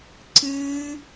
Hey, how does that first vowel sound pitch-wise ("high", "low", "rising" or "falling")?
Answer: high